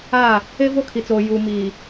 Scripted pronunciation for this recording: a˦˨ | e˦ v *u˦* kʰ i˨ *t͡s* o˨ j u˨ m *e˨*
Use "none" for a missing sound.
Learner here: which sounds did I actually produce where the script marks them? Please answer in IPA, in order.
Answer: o˦, t͡s, i˨

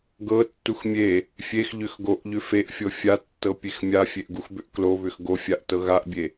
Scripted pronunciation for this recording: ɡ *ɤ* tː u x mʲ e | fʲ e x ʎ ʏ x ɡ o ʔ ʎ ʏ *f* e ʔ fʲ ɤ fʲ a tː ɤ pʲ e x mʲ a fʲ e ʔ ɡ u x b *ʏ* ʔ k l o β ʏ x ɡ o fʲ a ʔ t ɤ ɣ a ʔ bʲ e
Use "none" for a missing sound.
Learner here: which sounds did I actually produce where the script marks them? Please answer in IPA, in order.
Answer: ɤ, f, ʏ

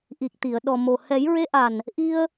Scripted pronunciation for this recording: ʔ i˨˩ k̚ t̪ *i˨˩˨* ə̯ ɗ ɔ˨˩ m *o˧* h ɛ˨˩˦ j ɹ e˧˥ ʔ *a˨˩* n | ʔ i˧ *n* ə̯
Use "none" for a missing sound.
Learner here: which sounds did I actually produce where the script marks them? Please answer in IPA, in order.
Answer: i˨˩˨, o˨˩, a˨˩, none

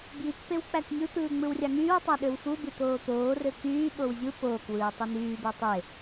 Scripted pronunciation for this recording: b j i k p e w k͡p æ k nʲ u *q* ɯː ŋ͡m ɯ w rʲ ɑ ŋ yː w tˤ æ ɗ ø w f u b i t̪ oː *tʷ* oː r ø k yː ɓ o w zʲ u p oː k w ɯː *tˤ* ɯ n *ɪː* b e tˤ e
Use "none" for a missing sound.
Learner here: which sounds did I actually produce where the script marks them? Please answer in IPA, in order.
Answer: t̪, t̪, tˤ, yː

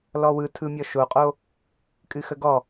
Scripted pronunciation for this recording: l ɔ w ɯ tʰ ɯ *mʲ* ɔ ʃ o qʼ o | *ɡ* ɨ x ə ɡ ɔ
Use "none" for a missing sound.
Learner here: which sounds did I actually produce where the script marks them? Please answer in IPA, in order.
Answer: mʲ, kʼ

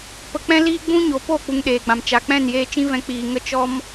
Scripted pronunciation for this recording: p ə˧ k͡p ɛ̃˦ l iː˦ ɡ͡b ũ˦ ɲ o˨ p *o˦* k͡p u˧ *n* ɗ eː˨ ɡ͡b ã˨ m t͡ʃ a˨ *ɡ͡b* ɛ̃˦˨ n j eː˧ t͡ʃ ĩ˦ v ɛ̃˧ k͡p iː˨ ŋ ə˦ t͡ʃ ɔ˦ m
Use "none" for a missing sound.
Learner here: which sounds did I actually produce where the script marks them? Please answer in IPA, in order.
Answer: o˦˨, ŋ, k͡p

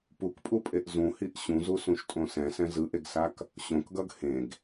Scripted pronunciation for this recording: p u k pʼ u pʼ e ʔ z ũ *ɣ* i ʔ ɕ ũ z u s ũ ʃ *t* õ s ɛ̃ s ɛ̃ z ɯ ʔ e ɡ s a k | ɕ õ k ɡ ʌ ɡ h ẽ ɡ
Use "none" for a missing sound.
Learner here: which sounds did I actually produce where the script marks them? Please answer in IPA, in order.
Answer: h, tʼ

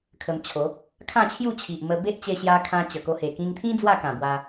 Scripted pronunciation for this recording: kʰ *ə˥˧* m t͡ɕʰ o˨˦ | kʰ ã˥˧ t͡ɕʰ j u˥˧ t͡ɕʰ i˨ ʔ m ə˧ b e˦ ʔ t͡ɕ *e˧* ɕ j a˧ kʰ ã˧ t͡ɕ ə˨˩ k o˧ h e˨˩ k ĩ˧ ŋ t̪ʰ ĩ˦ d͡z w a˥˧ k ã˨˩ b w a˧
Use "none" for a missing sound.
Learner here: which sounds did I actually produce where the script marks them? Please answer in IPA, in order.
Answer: ə˧, e˧

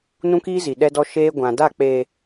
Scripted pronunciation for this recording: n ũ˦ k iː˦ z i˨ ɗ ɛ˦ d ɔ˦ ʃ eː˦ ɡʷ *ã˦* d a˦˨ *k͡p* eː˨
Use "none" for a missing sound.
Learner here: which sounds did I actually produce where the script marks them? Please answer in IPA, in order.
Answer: ã˨, k͡p

